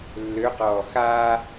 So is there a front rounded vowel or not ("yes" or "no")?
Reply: yes